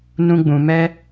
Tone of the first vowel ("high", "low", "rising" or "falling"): high